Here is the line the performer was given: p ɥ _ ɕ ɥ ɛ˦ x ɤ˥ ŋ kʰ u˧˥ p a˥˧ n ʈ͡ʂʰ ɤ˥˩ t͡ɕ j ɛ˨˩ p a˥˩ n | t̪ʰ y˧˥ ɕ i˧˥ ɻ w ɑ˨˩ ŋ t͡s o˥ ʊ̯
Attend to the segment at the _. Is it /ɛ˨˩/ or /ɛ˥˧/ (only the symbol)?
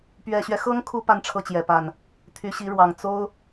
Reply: ɛ˨˩